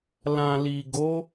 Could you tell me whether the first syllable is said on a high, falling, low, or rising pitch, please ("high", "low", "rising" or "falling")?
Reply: low